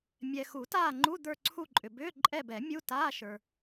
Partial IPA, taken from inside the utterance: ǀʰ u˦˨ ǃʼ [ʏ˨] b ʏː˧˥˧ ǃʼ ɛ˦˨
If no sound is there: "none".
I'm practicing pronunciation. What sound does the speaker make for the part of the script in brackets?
ʏ˨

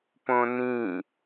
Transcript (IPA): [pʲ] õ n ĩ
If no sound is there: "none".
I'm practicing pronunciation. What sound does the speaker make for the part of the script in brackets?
p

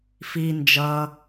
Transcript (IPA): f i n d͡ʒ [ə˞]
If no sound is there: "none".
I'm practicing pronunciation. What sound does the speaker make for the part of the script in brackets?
ʌ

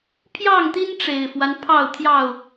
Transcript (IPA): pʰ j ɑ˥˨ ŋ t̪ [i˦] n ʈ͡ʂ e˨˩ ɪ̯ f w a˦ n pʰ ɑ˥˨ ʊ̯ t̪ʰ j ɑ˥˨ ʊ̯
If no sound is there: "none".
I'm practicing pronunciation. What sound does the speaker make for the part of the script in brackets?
i˦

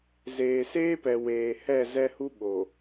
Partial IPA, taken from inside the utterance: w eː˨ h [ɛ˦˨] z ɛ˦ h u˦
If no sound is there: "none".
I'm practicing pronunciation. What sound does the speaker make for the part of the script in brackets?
ɛ˦˨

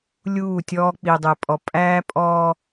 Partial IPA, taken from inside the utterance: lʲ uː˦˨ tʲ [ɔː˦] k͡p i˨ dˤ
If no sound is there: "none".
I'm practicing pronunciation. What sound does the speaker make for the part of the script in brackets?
ɔː˦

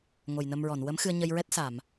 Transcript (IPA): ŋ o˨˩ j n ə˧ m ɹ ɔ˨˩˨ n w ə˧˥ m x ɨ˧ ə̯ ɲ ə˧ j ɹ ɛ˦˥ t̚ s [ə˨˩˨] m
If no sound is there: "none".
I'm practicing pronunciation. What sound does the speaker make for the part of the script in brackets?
a˨˩˨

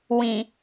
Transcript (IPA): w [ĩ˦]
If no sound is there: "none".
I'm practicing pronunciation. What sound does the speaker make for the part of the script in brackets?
ĩ˨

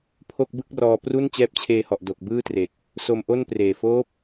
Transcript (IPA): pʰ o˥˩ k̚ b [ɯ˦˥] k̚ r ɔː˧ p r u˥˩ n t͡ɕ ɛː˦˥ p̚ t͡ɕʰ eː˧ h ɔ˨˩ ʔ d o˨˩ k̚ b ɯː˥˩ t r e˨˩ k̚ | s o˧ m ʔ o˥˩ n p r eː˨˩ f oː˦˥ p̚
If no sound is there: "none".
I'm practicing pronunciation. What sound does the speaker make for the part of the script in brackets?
ɯ˥˩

